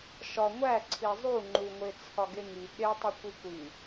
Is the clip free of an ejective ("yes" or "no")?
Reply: yes